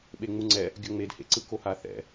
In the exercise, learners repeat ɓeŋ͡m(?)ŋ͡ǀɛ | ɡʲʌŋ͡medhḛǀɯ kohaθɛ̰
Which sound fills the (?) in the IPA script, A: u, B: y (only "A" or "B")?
A